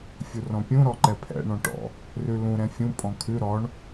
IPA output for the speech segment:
fʲurɔ̃pʲũ ɾɔǃɛpʰɛ̰ ɳɔ̃ʈɔ̰ | rʉlũ ɾɛ̃fʲũ pʼɔ̃kʰʉ ɾɔɳ

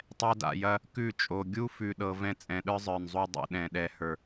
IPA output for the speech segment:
tˤɛ˧da̰˨jɐ˧ | kʉ˦˨t͡ʃʼo˨ ɡʲu˦ fʉ˧ɗɤ˧ vɛ̃˧t͡sʼɛ̃˨ ɗə˞˦zˤə˞˨nzˤu˧ dˤṵ˨ ɗɛ̃˨ɗɛ˨ hə˞˨

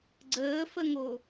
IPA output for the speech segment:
ɡ͡ǀəːfəŋo

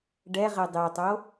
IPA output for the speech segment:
ɖɛ ʁedˤetˤo

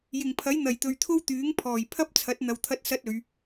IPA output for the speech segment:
jɪ˨˩ŋpʰɐ˨˥j n̪ɐ˨˩jt̪ɵ˨ɥt̪ʰo˥w t̪yː˨˥ŋ pʰɔː˨˩j pʰɐ˥p̚t͡sʰɐ˨˥t̚ n̪ɐ˧wt̪ʰɐ˥t̚sɐ˥t̚ɵ˨˧ɥ

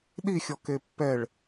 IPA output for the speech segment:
ɗixʲɔke pːɛɭ

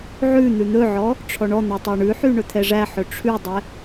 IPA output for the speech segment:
ʕʉ n̪ʉn̪ɵʕɔ | ʈ͡ʂʰɔɳɔn̪æ tˤɛɳʉħy ɳɵt̪ʰɛʐæħɵ ʈ͡ʂʰʉdˤɛ

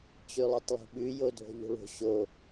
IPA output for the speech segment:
t͡ɕʉlˠotˤlˠṳɓʉ jodʱo̤ʎo̤ɭo̤ ɕo

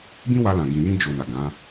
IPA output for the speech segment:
bĩ˦wa˧lã˨ ɡĩ˨jĩ˧ d͡ʒo˨ na˨ɡã˨˦

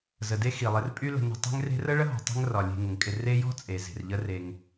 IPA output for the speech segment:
zə˩de˦ xi˩lˠɪ˨rpʼy˦ lə̤˨ nə̤˨ tˤe̤˦ŋre̤˦rə˥ ɭə˥ɦɔ̤˩tˤe̤˦ŋ rɒ˩lʲe̤˨ ŋə˩ŋkʼɪ˨ re˦jɔ̤˥ t͡sʼe˩ ze̤˩rʎə˦re˨ŋ

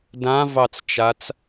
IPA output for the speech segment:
dãvɑt͡st͡ʃat͡s

